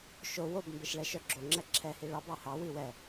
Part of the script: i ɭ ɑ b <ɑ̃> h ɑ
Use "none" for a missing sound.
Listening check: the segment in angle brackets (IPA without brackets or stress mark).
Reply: ɑ